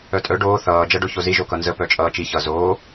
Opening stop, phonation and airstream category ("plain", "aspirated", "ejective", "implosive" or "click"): ejective